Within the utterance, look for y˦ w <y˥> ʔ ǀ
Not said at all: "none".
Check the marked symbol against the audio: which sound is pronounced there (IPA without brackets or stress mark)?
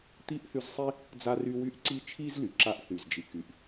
y˥